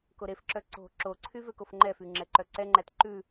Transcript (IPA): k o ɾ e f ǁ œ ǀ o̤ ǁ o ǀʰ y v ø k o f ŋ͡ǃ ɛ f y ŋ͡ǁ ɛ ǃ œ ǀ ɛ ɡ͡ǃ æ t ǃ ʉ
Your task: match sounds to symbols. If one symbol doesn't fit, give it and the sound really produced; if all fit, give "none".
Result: ɡ͡ǃ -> ŋ͡ǃ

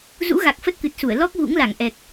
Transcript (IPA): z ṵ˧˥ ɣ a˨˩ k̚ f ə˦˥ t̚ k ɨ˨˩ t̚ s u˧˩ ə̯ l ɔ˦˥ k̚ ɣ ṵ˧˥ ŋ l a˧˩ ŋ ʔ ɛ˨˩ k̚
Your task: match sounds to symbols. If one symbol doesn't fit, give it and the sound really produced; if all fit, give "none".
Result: none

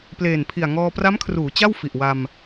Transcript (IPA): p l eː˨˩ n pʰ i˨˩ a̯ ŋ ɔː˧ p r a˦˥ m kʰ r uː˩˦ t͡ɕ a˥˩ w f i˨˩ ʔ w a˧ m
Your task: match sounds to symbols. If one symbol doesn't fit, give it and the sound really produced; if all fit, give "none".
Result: none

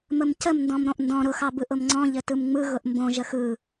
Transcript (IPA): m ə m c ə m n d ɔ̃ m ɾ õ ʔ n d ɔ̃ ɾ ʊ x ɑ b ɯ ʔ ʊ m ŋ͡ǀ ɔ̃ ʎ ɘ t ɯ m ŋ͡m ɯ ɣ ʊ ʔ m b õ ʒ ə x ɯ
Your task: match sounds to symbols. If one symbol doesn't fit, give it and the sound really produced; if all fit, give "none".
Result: none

